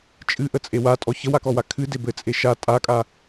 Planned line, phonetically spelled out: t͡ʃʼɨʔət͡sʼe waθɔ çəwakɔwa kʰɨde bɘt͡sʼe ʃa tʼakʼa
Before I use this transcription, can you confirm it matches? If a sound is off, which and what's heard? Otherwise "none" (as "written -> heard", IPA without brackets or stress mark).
θ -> tʼ